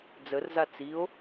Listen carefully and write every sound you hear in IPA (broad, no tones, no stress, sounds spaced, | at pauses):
d͡z ə r z a t͡s i o̯